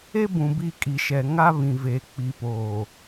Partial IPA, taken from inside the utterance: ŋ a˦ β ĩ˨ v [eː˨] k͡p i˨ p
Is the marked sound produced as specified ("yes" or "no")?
yes